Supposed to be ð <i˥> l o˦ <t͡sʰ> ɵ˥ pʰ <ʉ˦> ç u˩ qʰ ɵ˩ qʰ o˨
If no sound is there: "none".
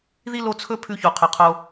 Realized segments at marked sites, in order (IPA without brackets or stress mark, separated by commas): i˥, t͡sʰ, ʉ˦